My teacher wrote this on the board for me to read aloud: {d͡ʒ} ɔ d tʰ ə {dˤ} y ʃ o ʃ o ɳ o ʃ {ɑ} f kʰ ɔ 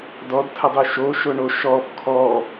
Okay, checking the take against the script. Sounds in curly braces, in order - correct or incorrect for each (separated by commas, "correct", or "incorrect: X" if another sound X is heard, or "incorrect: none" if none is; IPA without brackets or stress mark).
incorrect: d, correct, incorrect: ɔ